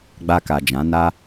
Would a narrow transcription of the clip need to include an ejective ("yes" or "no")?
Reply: no